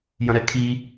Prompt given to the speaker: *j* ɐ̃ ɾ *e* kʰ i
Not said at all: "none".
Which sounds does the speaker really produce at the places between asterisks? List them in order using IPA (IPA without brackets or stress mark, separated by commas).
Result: j, ɛ